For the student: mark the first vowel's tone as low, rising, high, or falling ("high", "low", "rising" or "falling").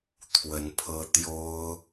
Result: rising